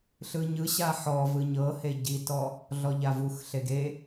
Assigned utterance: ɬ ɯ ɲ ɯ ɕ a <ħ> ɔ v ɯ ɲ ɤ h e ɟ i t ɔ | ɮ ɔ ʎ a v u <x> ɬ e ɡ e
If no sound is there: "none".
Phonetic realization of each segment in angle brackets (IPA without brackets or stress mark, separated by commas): ħ, x